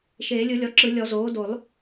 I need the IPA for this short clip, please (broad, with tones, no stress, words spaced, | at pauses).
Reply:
ʃeː˨˩˦lʲɯ˨˩˦lʲɔ˩˥ǁɯ˨˩˦ lʲɔ˨˩˦zoː˩˥ do˨˩˦lˠ